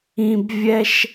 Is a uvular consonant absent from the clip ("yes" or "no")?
yes